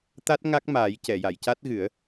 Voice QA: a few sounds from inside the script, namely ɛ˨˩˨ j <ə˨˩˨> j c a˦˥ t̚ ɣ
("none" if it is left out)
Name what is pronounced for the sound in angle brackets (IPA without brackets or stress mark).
a˨˩˨